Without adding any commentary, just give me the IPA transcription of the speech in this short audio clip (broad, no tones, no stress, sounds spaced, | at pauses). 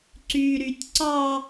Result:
ǀ y ɾ y tʲ ǀ ɑ